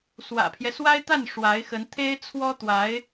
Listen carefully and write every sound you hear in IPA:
s w ä̰˨˩ pʰ j ɛ˦ s w a˥ ɪ̯ t̪ a˥˩ n ʂ w a˧˥ ɪ̯ x ə˧˥ n t̪ʰ e˥ ɪ̯ t͡sʰ w ɔ˥ t̪ w a˧˥ ɪ̯

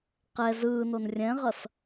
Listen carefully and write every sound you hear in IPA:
q ɛ z ɯː n o n rʲ ɛ̃ ʁ ʌ s

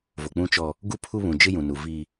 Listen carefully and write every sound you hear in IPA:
v o˨ k͡p ũ˦ t͡ʃ ɔ˦ | ɡ u˦ pʰ u˦ β ũ˨ d͡ʒ ɪ˦ j ũ˨ n u˨ v i˦

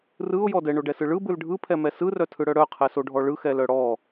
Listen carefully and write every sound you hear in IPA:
r ɯ ʊ̯ j ɔ d ɛ ɳ o ɖ ɛ s ɯ ɭ ɯ b ɯ l ɖʱ ɯ pʰ ɛ m ɛ s ɯ r œ tʰ ɯ ɽ œ ɽ œ qʰ ɛ s o ɖʱ ɔ ɭ ɯ x ɛ l œ ɽ ɔ

